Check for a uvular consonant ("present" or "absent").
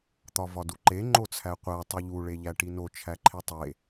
present